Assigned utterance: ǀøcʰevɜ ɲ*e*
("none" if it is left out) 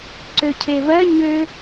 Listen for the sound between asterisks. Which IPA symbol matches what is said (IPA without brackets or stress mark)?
ø